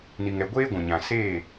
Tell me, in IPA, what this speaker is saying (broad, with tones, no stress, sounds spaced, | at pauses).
n i˨ ŋ ɛ˨ ɡʷ eː˦ ɡʷ ũ˨ ɲ ã˨ s eː˦˨